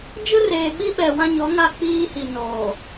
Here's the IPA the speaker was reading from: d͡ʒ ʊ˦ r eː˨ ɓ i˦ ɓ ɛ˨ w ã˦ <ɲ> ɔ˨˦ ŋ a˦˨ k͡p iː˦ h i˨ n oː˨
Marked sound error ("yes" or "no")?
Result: no